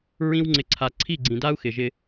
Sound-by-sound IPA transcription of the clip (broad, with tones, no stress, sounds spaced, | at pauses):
ɹ ĩ˧ w ŋ͡ǀ ɪ˨ ǀʰ a˨ ǀʰ i˦˨ ɡ͡ǀ ĩ˨ d a˦ u̯ x ɪ˨ ʒ ɪ˧